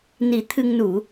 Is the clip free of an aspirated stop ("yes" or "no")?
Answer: no